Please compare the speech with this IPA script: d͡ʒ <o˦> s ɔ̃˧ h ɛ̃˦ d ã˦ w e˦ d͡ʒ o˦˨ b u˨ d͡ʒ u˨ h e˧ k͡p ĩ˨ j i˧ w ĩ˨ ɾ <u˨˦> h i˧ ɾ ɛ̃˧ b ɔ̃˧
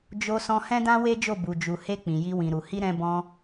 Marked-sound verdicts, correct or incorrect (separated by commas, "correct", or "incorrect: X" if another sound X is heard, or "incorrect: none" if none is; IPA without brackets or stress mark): incorrect: o˧, incorrect: u˨